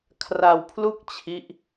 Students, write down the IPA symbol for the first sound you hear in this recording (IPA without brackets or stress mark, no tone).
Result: kʰ